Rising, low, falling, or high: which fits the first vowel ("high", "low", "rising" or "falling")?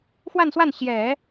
falling